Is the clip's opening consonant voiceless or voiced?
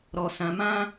voiced